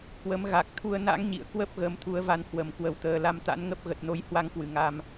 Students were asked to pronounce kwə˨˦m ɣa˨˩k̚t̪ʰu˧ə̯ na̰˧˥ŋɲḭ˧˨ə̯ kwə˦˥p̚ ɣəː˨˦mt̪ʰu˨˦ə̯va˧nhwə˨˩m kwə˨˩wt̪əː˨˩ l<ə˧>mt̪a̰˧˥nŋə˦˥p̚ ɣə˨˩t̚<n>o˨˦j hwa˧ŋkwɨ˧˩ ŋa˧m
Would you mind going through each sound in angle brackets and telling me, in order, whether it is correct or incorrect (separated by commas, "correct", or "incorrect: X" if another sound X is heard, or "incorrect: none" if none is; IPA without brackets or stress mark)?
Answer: incorrect: a˧, correct